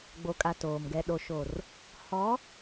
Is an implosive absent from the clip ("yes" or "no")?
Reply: no